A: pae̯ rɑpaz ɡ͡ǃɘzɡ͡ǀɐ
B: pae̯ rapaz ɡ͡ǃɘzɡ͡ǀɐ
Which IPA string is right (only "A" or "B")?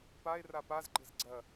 B